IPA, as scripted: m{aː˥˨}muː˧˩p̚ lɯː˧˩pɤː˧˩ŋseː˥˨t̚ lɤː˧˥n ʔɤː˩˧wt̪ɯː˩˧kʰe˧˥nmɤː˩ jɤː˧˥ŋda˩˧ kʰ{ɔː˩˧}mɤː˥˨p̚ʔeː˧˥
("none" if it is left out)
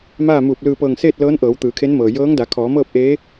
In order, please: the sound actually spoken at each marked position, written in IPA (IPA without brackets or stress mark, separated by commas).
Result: aː˥˨, ɔː˩˧